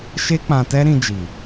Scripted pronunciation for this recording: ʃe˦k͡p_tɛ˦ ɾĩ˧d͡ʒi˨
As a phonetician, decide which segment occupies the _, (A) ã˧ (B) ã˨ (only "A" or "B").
A